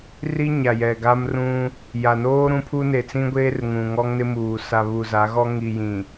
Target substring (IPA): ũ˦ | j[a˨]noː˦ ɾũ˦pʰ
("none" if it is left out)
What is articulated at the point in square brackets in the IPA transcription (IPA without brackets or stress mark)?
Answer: a˨